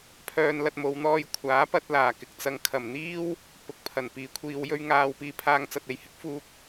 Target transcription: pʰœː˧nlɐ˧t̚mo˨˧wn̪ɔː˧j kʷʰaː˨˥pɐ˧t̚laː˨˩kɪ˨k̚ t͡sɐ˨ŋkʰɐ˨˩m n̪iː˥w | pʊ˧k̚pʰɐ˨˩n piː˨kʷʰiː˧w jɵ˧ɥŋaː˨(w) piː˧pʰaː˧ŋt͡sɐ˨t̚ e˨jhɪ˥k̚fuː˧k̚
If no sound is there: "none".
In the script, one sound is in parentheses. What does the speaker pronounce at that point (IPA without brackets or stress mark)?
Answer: w